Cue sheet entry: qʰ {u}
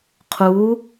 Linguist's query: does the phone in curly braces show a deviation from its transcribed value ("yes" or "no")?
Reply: no